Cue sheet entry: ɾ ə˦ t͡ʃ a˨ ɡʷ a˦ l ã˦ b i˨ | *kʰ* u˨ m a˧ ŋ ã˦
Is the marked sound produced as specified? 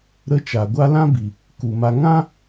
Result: no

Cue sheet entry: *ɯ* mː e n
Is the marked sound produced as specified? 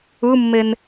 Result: yes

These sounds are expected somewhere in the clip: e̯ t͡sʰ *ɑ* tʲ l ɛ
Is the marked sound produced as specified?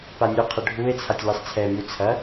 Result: no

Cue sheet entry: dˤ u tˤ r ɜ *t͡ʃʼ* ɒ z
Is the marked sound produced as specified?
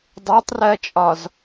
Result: yes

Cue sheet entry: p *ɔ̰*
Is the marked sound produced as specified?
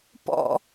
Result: yes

